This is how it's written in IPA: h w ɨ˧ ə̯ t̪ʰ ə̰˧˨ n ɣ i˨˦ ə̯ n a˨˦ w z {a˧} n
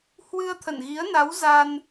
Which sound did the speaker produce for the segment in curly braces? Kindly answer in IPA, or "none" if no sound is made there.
a˧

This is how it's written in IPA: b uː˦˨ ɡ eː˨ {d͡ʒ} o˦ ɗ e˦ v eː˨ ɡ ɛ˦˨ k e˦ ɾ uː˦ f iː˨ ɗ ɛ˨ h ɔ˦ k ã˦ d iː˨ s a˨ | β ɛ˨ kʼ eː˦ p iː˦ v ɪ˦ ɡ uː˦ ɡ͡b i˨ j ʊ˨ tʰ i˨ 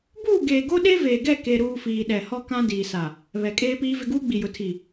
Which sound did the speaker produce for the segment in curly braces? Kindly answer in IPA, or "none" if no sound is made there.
ɡ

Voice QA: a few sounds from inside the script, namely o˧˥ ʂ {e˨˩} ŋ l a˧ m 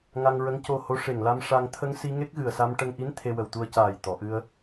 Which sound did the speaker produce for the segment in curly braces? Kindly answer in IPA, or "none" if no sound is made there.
e˨˩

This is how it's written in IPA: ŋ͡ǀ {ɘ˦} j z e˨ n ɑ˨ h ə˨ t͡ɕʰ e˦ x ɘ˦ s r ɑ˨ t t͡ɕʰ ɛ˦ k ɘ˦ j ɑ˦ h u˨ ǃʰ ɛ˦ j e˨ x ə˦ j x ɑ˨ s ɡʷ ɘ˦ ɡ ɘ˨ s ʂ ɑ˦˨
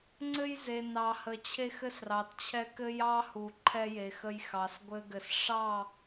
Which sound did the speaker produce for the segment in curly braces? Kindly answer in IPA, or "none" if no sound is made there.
ɘ˦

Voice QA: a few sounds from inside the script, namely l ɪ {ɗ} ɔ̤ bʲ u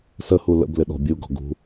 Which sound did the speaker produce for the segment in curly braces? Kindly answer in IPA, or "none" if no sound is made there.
ɗ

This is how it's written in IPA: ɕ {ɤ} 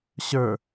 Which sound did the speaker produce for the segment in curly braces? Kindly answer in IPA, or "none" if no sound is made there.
ə˞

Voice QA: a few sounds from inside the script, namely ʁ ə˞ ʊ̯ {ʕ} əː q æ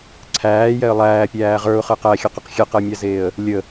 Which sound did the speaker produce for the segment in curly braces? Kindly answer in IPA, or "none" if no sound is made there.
χ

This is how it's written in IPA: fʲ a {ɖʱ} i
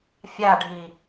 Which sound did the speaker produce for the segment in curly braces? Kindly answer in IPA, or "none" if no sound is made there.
ɖʱ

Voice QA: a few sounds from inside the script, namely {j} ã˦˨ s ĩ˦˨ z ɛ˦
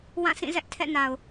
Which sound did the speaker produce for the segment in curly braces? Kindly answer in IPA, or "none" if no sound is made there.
w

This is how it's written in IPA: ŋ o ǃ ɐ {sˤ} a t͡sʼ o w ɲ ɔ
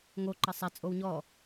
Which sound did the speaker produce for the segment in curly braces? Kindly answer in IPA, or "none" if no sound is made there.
sˤ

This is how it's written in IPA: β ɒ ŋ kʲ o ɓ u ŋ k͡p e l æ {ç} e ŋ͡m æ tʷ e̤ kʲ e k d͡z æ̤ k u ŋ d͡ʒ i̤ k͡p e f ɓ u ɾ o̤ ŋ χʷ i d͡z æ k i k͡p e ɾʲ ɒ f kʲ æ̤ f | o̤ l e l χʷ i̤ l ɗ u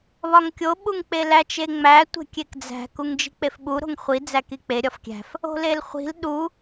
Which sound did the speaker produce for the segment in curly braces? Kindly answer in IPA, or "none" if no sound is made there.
t͡ʃ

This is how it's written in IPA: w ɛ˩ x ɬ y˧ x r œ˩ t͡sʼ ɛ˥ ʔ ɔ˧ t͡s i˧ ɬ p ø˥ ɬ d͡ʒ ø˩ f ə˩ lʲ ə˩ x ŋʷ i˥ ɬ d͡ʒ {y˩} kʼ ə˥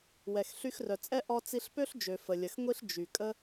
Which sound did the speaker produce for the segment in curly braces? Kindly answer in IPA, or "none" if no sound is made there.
y˩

